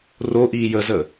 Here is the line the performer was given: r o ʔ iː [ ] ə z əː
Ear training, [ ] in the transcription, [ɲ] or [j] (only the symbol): j